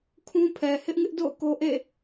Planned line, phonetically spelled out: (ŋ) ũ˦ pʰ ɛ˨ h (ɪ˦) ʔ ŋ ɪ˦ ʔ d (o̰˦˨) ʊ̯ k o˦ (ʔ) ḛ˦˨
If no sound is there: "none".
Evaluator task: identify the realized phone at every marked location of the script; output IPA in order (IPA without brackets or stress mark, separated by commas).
kʰ, ɪ˦, o̰˦˨, ʔ